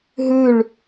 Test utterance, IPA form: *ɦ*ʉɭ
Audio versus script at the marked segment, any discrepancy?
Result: no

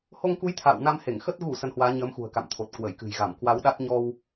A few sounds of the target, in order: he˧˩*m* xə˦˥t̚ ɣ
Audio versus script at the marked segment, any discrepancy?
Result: yes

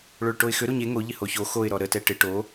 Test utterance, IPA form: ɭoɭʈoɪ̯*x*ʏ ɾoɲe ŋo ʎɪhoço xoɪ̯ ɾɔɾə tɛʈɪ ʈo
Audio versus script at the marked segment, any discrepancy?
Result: no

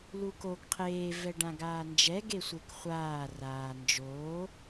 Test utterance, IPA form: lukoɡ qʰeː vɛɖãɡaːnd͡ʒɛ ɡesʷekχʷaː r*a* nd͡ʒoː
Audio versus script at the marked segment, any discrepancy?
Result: yes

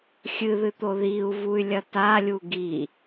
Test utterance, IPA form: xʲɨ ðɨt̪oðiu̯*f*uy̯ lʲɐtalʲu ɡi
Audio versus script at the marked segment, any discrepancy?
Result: yes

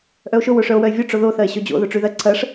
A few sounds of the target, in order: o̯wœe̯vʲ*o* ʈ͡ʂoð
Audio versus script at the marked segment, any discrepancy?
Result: no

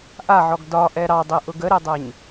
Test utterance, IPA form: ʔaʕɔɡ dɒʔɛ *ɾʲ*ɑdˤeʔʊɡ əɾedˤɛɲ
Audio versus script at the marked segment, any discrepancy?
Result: yes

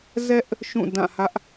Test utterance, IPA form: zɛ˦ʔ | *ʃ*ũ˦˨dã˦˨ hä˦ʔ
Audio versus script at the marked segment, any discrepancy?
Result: no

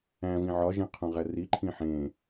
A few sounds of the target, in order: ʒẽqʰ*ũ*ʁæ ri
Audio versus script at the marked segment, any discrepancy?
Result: no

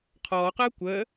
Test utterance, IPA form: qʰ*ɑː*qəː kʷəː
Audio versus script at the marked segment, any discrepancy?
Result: yes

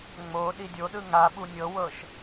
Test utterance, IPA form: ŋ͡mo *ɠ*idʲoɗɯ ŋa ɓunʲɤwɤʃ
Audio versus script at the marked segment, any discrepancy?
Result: yes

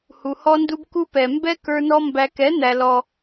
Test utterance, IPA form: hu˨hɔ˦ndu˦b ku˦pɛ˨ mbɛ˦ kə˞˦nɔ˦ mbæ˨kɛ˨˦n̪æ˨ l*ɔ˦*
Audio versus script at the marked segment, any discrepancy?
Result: no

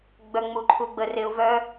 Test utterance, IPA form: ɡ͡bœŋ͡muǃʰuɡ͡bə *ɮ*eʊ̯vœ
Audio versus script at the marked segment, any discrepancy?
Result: yes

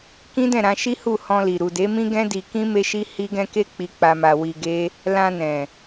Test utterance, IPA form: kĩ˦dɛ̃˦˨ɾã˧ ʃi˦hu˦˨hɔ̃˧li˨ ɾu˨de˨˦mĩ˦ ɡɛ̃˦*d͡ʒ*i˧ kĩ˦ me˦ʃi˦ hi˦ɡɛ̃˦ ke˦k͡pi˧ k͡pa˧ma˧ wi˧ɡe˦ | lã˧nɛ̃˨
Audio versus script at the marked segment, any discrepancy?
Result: yes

